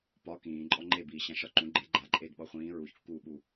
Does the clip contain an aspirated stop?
no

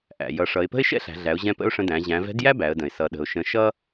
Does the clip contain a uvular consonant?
no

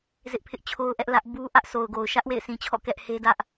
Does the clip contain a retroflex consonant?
no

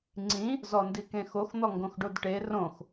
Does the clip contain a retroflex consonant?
yes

